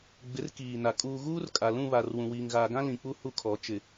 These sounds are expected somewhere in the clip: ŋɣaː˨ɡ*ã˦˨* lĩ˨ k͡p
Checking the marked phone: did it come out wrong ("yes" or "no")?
yes